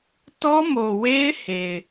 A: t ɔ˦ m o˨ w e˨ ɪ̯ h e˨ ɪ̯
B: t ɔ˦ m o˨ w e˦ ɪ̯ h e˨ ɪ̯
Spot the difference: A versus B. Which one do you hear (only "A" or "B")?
B